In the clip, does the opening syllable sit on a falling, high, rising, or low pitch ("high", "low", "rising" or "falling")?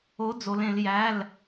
rising